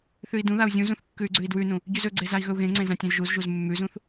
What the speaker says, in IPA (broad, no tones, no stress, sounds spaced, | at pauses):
θ ʉ i̯ d ũ ð a u̯ zʲ ũ z ũ θ kː ʉ y̯ ɡ͡ǀ ʉ i̯ d w ʉ n ũ | ɟ ʉ z ɵ ɡ͡ǀ e z a i̯ ɣ ɵ u̯ ɣ ẽ ŋ͡ǀ ẽ z ã tʲ ẽ z ʒ u z ʒ u z mː ʉ z ũ θ